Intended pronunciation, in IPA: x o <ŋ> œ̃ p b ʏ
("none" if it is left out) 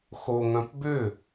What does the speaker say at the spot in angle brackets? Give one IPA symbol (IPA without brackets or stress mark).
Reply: ŋ